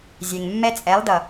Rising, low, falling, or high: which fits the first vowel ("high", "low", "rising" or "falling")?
low